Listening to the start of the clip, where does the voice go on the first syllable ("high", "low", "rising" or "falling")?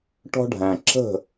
high